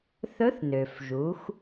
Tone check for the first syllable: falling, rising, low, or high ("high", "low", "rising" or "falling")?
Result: rising